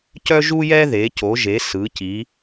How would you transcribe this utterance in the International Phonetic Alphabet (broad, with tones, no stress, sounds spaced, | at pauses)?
c œ˥ ʒ u˥ j ɛ˥ ð e˩˧ c o˩˧ ʒ e˩˧ s ɯ˩˧ c i˩˧